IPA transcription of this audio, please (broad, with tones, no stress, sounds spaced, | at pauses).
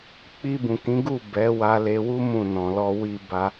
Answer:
k͡p i˧ b ũ˨ k ĩ˨˦ ɡ u˦˨ b ɛ˨˦ w a˧ l e˧ w u˦ m ũ˦˨ n ɔ̃˨ l ɔ˧ w i˧ b a˧